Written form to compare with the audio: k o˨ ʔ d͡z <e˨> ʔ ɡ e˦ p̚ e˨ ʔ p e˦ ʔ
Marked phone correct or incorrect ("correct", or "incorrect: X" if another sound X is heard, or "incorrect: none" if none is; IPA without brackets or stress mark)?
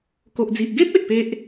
incorrect: i˨